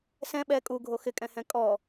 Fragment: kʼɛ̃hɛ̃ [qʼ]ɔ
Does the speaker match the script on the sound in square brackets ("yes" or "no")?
no